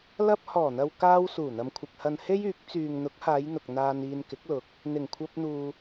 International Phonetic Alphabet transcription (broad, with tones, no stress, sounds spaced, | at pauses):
l ɐ˧ p̚ h ɔː˨˩ n̪ ɐ˨ w k aː˧ w s uː˨˩ n̪ ɐ˨ m kʷʰ ɪ˨ k̚ h ɐ˨ n h e˥ j yː˨˥ k̚ t͡s yː˨ ŋ n̪ ʊ˨˥ k̚ h aː˨˧ j n̪ ʊ˨ k̚ n̪ aː˧ n iː˧ n k ɪ˨˥ k̚ l ʊ˨˥ k̚ | n̪ ɪ˨˩ ŋ kʷʰ ɐ˧ p̚ n̪ uː˨